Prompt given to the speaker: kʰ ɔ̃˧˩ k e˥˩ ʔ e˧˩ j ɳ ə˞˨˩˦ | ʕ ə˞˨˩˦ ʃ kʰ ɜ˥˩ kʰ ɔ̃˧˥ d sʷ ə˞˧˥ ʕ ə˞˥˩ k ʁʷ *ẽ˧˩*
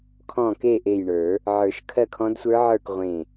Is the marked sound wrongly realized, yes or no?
no